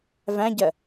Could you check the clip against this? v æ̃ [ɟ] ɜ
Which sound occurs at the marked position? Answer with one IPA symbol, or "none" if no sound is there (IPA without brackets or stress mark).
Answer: ɟ